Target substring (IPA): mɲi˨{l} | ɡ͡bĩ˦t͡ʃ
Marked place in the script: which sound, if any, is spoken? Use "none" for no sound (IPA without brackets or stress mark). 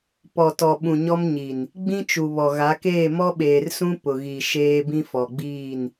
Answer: n